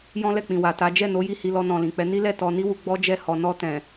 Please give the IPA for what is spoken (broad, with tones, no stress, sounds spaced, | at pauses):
j ɔ̃˦ l ɛ˦˨ k͡p ĩ˨ w a˨ t a˨˦ d͡ʒ ɛ˦˨ n o˨˦ j i˦˨ h i˧ l ɔ˧ n ɔ̃˨ l ĩ˨ k͡p ɛ˨˦ n i˦ l ɛ˦˨ t ɔ˧ n i˦ w u˧ ɡ͡b ɔ˦ d͡ʒ ɛ˦˨ h ɔ˨ n ɔ˧ t ɛ̃˨